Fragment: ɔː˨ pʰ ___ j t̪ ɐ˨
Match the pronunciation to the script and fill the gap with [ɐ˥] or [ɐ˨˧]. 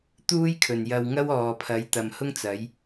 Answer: ɐ˨˧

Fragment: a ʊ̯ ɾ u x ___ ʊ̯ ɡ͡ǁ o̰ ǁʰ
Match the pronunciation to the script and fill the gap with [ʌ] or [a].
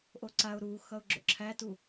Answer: ʌ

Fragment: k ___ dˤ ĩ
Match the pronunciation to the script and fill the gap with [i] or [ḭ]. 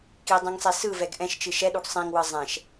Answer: i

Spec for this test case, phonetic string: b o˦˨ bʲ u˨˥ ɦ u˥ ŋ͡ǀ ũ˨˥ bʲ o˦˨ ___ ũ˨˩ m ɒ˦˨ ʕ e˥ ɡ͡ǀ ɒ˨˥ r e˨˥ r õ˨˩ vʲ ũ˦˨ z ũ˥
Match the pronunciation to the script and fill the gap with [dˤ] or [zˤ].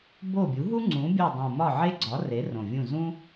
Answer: dˤ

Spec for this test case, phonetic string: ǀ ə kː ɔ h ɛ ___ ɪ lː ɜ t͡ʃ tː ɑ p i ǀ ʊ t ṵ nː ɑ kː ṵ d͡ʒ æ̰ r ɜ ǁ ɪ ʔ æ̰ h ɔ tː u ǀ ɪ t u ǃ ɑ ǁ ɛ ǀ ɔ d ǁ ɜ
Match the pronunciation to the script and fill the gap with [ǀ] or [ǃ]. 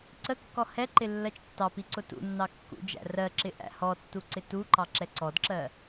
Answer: ǃ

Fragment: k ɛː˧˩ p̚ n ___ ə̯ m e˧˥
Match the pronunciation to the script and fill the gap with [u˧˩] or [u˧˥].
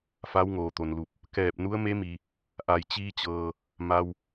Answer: u˧˥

